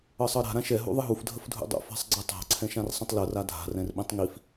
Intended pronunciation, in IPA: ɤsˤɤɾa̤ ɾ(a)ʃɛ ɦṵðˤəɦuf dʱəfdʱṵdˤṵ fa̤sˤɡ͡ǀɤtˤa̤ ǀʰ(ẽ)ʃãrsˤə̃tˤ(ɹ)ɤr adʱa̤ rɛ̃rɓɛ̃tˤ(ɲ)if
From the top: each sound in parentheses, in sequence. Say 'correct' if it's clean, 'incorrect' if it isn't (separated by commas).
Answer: incorrect, incorrect, incorrect, incorrect